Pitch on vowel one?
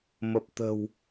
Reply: low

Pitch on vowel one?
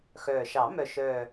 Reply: low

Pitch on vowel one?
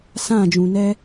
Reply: falling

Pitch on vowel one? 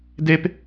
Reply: high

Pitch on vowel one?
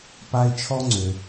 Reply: high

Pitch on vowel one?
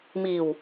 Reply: low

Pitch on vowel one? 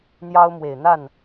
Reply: high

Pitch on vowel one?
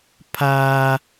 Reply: high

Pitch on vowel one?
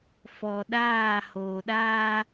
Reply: low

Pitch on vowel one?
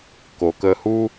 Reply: low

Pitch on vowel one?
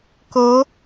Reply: rising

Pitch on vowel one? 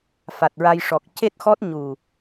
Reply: low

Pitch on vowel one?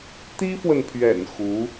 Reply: high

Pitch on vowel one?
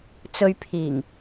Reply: low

